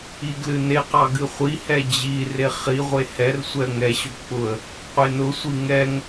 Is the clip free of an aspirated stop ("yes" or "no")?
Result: yes